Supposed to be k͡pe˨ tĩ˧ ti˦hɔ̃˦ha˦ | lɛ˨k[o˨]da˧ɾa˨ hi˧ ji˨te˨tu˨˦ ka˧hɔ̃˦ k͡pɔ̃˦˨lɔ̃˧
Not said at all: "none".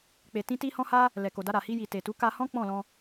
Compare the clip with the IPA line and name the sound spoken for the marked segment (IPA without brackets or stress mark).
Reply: o˨